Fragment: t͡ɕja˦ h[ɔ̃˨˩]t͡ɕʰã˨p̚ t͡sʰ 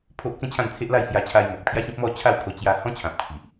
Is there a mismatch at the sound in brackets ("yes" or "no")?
yes